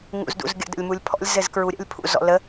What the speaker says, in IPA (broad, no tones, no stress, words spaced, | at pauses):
ŋṵzdṵzɡʲə̰ də̰lʲmulʲpʰɔ̰lʲ zɘzkɹuɾʲə̰lʲ pʰṵzɔ̰lə